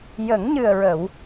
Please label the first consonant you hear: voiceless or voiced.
voiced